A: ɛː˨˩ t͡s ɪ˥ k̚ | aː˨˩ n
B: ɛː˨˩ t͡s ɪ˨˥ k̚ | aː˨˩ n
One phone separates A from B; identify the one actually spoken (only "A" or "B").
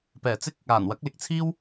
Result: A